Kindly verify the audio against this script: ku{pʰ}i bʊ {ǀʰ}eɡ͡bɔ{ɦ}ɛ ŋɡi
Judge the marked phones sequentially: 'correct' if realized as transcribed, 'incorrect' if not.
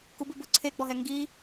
incorrect, correct, correct

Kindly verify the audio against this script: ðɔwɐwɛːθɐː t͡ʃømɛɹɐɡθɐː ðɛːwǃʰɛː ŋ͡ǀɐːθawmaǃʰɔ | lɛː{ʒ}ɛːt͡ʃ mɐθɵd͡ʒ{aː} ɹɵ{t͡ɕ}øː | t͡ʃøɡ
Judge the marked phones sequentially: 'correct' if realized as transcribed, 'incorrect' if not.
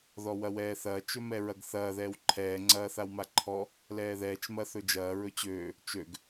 incorrect, incorrect, correct

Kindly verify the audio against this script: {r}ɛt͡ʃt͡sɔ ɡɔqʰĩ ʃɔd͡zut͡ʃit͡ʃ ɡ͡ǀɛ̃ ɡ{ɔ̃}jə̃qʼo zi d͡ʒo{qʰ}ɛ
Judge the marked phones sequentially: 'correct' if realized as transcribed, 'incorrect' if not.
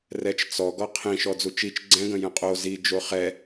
correct, incorrect, incorrect

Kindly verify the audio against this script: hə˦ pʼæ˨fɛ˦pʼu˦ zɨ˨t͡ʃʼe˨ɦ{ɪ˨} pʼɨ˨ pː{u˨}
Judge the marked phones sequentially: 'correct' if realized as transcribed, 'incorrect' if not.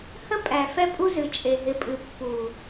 correct, correct

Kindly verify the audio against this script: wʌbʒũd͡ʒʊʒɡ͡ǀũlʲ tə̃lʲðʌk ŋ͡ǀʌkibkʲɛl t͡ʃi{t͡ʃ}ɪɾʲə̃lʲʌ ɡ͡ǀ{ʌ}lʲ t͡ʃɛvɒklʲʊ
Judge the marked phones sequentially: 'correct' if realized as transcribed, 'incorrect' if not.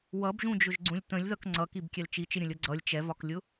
correct, correct

